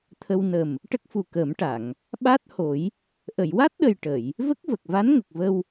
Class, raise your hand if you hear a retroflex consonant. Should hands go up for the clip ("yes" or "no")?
yes